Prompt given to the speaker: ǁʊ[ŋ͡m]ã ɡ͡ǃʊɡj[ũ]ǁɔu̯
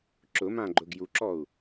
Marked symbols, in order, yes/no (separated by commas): no, no